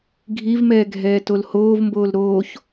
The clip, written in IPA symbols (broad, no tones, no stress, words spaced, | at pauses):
ɡʱivmɛː ɡʱɛːtolhoːvmboːl ɾoːç